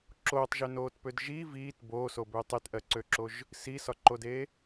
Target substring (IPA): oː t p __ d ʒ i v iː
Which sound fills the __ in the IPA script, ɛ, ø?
ø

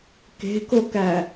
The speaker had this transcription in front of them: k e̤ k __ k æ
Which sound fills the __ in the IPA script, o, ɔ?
o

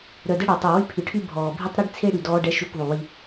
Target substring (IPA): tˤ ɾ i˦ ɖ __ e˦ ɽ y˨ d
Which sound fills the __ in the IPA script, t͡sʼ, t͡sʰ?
t͡sʰ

